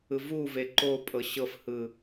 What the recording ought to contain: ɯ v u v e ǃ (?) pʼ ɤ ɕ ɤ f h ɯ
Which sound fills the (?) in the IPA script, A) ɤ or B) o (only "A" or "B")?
B